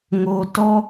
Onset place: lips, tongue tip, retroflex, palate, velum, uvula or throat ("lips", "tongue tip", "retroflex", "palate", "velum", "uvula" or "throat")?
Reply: velum